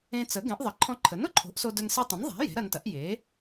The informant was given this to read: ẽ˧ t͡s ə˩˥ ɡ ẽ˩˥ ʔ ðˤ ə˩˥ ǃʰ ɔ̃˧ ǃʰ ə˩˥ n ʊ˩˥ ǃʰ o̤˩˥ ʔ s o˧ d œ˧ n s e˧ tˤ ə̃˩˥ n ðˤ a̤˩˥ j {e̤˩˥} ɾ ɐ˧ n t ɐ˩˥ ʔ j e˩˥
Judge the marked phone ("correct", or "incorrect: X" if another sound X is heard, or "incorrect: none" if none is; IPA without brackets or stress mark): correct